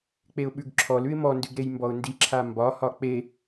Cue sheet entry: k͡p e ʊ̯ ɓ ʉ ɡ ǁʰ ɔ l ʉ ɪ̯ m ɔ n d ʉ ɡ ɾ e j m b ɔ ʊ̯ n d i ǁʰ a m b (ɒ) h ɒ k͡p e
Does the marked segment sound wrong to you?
no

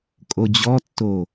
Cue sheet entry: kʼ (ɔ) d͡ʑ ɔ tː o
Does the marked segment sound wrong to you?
yes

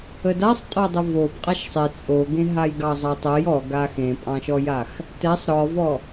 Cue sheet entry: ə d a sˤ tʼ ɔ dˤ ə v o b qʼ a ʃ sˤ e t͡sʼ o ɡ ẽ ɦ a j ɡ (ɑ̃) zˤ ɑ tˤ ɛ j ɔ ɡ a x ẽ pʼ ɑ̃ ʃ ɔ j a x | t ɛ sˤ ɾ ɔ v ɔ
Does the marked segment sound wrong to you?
yes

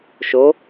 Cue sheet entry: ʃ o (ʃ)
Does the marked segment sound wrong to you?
yes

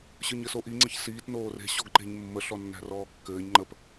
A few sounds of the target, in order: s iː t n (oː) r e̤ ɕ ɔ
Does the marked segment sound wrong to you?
no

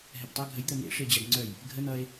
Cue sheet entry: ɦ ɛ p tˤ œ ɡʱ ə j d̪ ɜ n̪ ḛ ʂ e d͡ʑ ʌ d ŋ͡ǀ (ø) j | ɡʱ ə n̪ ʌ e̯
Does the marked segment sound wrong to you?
yes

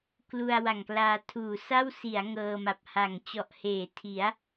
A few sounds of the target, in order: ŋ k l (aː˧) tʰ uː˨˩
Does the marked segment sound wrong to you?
no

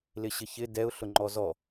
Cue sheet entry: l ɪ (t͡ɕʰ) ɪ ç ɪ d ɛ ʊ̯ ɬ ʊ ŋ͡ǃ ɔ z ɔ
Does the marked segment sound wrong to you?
yes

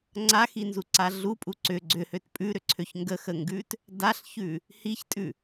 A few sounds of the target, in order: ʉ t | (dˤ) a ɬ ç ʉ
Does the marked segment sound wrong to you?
yes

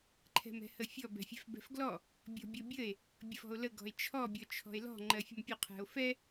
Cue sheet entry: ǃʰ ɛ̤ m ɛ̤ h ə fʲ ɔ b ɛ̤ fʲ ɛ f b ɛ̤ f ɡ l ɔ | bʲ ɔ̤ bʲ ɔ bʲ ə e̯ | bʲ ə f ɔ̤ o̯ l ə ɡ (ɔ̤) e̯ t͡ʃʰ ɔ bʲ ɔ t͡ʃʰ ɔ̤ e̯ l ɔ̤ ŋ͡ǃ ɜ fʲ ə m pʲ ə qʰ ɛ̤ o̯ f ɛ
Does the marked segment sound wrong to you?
no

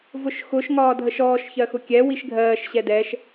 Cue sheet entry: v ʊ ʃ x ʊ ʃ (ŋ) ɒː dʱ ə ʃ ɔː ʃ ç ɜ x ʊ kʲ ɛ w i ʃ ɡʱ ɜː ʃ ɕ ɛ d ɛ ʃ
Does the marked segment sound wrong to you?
no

